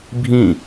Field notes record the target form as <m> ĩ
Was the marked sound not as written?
yes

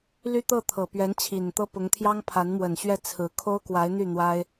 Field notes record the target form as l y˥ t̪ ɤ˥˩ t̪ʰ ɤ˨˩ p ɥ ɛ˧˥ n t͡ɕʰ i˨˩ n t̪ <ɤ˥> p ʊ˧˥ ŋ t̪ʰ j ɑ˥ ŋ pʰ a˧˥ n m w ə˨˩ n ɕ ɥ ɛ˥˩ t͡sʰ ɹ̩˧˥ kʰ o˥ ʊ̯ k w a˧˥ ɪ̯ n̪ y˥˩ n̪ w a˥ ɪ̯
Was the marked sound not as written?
no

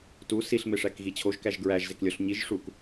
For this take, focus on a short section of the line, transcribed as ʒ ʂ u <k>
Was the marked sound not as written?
no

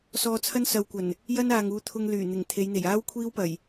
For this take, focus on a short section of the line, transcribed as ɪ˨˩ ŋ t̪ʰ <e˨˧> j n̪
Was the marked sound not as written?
no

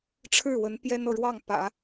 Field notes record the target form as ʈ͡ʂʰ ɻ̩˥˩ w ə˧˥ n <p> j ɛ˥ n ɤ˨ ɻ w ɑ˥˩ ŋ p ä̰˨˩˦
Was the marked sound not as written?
no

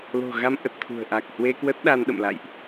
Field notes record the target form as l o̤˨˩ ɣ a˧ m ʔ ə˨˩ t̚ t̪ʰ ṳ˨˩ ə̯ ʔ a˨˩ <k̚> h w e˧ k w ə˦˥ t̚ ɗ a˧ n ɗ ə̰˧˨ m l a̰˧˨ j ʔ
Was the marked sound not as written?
no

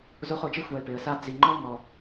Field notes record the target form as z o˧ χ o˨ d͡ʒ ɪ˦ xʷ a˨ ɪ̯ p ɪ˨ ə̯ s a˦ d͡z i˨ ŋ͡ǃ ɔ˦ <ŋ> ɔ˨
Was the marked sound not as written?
no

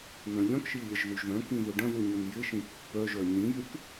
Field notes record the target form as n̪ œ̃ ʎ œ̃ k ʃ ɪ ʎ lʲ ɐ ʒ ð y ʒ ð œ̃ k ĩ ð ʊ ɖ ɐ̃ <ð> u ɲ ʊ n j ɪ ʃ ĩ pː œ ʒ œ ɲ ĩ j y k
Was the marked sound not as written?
no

